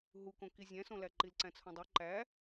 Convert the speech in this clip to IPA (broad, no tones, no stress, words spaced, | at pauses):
ɦukõ kizʲæ̃sõlæ ǃilǀæ̃t͡sʰõdˤo ǃæ